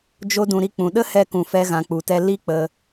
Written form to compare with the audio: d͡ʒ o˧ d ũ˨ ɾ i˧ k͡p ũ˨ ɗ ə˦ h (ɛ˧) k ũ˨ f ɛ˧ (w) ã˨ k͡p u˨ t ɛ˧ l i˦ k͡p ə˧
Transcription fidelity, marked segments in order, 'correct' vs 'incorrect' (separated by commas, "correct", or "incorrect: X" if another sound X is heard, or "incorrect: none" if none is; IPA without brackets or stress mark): correct, incorrect: ɣ